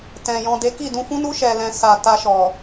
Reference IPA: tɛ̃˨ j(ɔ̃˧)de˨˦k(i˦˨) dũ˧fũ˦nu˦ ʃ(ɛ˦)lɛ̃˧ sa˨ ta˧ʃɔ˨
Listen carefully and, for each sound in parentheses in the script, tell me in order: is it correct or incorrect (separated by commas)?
incorrect, correct, incorrect